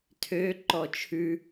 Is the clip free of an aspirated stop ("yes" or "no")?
no